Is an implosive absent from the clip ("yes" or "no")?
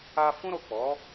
yes